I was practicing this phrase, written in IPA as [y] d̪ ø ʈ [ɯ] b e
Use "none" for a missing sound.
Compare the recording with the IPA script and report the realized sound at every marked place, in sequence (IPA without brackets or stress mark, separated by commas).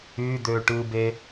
y, ɯ